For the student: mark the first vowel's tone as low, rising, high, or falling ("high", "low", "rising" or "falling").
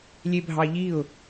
low